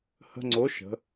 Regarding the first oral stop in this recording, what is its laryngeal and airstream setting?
click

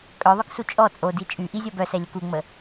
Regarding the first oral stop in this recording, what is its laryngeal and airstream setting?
ejective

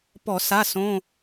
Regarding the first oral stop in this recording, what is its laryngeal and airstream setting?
plain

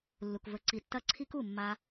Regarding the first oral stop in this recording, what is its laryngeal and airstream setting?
plain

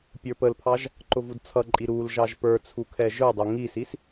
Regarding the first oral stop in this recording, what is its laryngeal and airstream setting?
plain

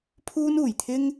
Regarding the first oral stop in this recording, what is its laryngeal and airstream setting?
aspirated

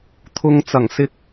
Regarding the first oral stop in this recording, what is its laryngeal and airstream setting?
aspirated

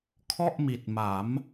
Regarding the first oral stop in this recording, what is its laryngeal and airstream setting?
aspirated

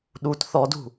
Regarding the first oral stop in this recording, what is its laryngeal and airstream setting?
implosive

